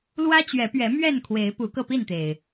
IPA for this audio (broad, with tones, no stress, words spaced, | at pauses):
lwä˦t͡ɕɥɛ˨˦pɥɛ˨˦ mɥɛ˥˨nkʰwe˨˦ɪ̯ pu˨˦kɤ˧pi˥˨nt̪e˩ɪ̯